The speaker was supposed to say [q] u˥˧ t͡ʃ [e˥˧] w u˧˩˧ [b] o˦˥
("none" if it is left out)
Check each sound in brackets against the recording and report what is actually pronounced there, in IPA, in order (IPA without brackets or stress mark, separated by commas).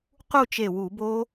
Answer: q, e˧˩, b